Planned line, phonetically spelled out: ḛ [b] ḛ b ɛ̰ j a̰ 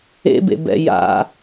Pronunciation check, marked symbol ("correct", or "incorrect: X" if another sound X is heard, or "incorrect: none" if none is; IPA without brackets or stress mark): correct